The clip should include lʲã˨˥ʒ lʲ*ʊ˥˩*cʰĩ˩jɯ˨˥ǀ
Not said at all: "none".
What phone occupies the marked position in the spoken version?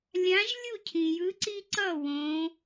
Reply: u˥˩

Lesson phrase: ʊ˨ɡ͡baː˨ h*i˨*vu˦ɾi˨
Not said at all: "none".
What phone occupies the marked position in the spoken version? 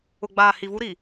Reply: i˨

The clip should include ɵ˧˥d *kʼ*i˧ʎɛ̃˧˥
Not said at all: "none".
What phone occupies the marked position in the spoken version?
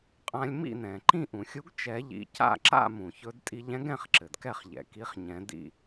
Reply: tʼ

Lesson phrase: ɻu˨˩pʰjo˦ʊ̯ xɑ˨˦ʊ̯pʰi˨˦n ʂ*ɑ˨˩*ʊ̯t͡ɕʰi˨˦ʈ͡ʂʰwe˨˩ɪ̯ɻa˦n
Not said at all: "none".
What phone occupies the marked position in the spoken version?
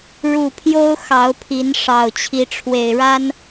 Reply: ɑ˨˩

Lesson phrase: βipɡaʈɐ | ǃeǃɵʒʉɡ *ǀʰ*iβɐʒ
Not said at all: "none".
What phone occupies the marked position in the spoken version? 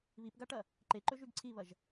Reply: ǀʰ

